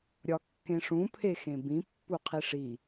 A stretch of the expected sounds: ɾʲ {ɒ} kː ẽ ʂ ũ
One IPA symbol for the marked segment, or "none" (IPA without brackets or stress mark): ɒ